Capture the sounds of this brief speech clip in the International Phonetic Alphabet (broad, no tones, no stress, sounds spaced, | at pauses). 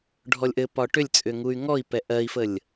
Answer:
ɖʱ ɔ lʲ ʔ ɘ p ɒ ʈ ʏ lʲ t͡sʼ ʏ ŋ u y̯ ŋ ɔ i̯ p ɛ ʔ ɜ i̯ f ə lʲ